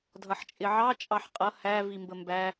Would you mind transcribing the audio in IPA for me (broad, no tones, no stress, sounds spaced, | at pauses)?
dʱ ʌ ħ t͡ʃʼ ɪ ʕ ɑ t͡ʃʼ ɑ ħ qʼ ʌ h æ v i m b ə m b æ